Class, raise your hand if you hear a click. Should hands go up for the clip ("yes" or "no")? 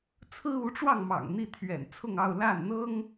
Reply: no